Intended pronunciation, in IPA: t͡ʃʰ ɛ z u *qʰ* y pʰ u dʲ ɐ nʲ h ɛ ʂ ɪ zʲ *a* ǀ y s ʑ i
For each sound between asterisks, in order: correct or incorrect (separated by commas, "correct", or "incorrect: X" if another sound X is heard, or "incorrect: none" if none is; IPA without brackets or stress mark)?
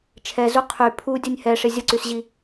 correct, incorrect: ə